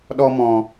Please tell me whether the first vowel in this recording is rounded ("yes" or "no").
yes